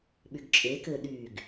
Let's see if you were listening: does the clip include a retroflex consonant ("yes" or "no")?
no